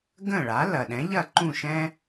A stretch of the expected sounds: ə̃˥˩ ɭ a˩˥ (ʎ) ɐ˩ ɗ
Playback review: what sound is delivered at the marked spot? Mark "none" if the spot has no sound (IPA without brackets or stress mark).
l